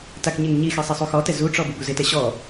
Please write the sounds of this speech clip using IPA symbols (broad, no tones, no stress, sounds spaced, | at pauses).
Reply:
t a k ɲ e ŋ ɲ i x ɛ sˤ ɪ sˤ u x ɔ t ɛ z u ʈ͡ʂ ɔ b u b u z ɪ t ɛ ɕ ɔ